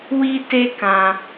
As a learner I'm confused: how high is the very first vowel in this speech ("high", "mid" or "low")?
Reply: high